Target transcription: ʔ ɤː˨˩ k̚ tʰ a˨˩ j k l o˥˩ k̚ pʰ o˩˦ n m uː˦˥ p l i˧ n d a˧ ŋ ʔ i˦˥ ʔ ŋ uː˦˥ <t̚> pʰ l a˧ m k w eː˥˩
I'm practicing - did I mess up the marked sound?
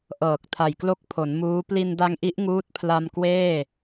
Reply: no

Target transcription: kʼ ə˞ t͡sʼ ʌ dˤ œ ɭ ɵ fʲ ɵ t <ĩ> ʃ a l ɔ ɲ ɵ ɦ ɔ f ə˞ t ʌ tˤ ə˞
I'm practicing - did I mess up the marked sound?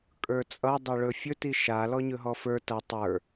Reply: yes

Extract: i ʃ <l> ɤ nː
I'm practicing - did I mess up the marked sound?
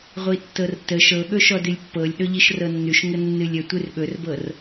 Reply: yes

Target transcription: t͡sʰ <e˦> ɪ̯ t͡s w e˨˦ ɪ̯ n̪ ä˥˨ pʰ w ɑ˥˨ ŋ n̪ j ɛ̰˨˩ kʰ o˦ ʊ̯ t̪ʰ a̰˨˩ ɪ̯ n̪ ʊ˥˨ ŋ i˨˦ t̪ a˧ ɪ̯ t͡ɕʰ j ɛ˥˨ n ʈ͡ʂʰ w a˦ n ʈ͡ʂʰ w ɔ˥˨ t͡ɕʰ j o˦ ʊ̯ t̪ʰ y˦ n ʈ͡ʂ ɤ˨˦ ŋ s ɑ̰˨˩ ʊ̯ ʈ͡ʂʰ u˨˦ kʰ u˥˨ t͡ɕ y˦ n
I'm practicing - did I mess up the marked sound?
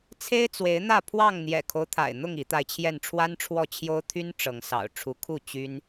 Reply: no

